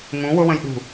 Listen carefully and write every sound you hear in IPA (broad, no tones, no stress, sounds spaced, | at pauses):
ŋ ũ w ʊ w ə̃ j ɗ ṳ